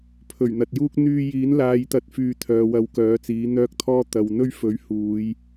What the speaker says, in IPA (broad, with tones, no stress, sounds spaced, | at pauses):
pʰ ɵ˨˩ ɥ n̪ ɐ˨ t̚ j uː˥ k̚ n̪ yː˧ j iː˨˥ n l aː˨˧ j t̪ ɐ˨˥ t̚ f yː˨˧ t̪ʰ œː˨ w ɐ˧ w k œː˨˥ t͡s iː˨˥ n̪ œː˧ k̚ t̪ʰ ɔː˧ t̪ ɐ˨˧ w n̪ ɵ˥ ɥ f ɵ˨˥ ɥ h uː˨˧ j